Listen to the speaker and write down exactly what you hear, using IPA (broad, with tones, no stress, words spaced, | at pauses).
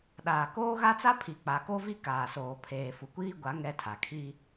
ɗaː˨koː˦ɣa˦t͡sa˦ pʰi˨k͡pa˨ ko˦vi˦ kaː˨soː˨ pʰeː˨fu˨kʷiː˦ɡʷa˨˦ ŋɛ˦tʰa˨ kʰi˦